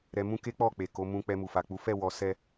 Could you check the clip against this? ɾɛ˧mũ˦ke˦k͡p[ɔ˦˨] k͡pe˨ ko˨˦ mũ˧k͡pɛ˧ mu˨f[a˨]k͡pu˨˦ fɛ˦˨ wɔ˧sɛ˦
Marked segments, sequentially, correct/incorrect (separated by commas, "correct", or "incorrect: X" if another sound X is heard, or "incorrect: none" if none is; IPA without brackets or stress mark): correct, correct